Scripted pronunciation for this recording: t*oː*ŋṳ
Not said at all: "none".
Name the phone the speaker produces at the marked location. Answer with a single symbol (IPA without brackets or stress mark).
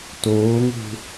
oː